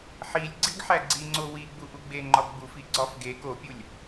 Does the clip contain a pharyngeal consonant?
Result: yes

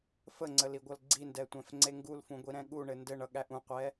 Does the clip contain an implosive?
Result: yes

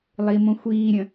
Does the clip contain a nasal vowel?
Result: yes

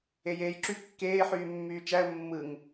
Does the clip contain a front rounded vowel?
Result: yes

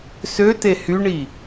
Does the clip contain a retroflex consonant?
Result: yes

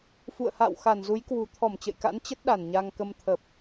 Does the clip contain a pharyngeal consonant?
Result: no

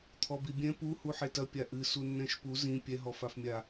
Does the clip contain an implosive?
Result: no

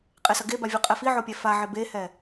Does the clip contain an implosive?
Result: no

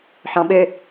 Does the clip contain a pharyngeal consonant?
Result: yes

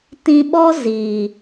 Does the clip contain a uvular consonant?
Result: no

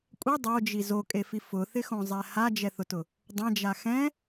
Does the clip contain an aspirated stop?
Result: no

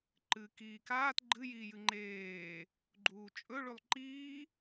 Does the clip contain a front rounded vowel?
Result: no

